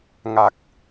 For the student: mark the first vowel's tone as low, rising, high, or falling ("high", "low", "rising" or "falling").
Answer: low